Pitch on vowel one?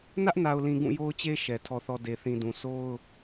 high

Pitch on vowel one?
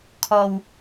low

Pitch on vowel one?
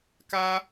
high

